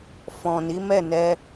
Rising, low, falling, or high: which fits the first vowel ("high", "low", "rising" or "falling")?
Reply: low